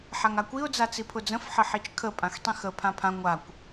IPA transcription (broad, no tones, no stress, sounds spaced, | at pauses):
ħ a ŋ a kʷ i ʊ̯ d͡z a t͡s i pʰ ʊ d͡z ə̃ f ħ ə ħ i t͡ʃ kʰ ə pʼ ã x tˤ ĩ x ə pʰ ã pʰ ã ŋʷ a kʷ